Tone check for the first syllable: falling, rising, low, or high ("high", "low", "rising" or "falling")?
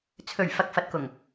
low